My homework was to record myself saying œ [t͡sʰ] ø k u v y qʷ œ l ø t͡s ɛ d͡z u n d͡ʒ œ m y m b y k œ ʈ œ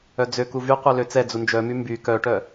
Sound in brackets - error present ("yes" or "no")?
yes